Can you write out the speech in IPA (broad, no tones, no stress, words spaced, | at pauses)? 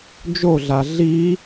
d͡ʒoɮa ɮi